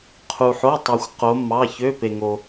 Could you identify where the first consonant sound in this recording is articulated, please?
uvular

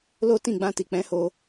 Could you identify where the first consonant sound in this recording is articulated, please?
alveolar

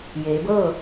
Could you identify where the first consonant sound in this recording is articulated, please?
palatal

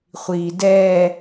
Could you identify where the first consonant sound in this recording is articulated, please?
uvular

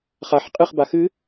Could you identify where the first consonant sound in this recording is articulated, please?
uvular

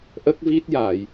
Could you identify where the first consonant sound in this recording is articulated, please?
glottal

